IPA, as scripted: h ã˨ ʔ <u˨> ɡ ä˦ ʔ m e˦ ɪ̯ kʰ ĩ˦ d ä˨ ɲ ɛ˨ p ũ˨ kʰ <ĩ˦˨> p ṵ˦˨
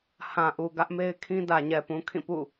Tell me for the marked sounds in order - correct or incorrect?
correct, correct

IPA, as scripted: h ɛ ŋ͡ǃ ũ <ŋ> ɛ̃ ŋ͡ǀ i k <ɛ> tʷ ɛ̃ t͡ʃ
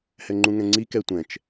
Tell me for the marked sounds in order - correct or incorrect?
correct, correct

